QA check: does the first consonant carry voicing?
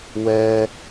yes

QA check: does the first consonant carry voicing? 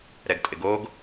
yes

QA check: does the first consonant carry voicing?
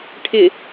no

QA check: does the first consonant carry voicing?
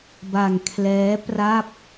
yes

